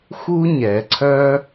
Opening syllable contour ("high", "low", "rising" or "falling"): high